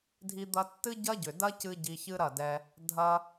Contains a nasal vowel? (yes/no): no